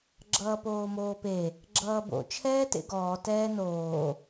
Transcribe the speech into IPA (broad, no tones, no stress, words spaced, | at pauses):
ɡ͡ǁʌːpoːmoːpe | ɡ͡ǁʌːbo̰ t͡ʃʰɛːtḛɡɔː tɛːnoː